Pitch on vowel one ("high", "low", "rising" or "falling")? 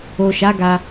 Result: low